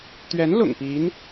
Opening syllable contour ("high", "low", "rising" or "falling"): rising